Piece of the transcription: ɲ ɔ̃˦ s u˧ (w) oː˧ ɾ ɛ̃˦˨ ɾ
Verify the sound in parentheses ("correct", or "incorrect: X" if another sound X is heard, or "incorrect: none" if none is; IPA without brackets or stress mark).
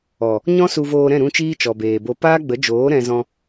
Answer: incorrect: v